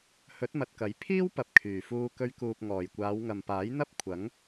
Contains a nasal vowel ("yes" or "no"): no